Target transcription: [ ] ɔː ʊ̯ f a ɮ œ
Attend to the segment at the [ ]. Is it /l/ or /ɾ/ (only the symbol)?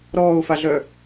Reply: ɾ